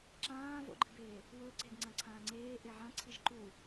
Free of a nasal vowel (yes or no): no